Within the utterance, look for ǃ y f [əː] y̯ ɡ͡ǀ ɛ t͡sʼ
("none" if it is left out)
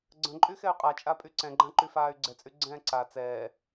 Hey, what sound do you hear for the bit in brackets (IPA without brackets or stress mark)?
aː